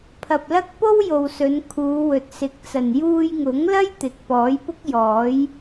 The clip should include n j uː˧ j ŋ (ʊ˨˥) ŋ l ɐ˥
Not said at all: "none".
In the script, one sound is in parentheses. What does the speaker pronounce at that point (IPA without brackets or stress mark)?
ʊ˨˥